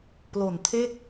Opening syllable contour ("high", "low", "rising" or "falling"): low